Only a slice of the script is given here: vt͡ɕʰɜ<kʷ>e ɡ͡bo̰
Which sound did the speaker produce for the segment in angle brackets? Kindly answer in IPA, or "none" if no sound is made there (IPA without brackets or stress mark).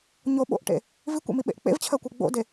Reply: kʷ